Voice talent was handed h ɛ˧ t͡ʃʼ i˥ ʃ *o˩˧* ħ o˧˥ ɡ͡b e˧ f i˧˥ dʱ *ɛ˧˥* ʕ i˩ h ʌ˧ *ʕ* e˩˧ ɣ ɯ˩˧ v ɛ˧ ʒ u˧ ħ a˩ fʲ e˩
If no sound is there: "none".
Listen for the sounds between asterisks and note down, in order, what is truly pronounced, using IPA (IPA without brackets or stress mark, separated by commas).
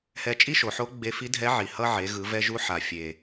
o˩˧, ɛ˧˥, ʕ